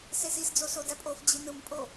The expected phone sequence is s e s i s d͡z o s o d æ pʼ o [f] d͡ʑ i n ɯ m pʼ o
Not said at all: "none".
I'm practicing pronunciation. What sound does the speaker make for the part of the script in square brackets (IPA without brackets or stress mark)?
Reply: f